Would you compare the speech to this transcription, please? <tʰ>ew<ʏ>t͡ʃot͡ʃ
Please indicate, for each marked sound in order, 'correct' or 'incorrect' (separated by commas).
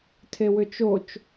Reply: correct, correct